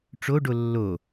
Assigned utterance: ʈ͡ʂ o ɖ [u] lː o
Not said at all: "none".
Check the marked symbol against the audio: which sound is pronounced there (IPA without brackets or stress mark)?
o